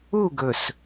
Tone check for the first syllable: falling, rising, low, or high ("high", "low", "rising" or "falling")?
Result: falling